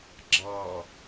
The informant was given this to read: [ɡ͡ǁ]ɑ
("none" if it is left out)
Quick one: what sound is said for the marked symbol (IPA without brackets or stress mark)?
ɡ͡ǁ